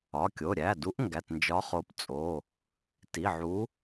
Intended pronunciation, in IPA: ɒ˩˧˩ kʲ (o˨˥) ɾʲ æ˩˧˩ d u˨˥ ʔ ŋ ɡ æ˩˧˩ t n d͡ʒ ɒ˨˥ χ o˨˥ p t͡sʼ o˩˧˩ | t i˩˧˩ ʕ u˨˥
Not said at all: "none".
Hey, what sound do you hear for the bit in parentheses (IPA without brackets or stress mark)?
o˩˧˩